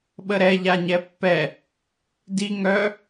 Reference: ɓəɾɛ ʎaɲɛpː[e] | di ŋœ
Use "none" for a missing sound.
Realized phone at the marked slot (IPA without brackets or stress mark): ɛ